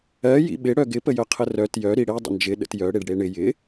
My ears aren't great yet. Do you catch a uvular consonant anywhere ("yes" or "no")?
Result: yes